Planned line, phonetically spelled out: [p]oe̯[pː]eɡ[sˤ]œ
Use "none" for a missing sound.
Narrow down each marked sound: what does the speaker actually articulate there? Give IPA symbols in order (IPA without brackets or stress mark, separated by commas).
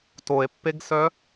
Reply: t, pː, s